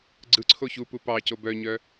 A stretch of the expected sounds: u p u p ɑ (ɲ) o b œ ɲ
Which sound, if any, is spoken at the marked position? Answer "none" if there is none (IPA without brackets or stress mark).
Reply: c